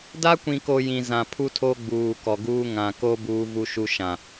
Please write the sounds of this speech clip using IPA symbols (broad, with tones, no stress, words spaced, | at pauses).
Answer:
da˦kʷĩ˨ko˨ jĩ˨ zã˨pʰu˦tʰo˦ ɡ͡buː˨kɔ˨ɡuː˦ ŋã˨ko˦ buː˦vu˦ʃu˦ ʃã˨